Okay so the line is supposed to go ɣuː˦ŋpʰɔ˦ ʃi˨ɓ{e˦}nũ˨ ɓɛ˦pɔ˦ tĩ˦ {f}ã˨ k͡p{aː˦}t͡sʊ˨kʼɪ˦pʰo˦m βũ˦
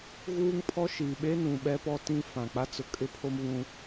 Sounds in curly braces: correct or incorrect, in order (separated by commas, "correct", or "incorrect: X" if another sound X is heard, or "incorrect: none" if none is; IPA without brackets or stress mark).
correct, correct, incorrect: a˦